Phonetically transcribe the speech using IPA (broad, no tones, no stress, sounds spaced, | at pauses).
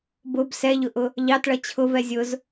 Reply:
b ʊ b s ɛ ʎ ʊ ʔ ʊ | ʎ ɑ t ɭ ʌ t͡ɕʰ ʊ v ɛ zʲ ʊ z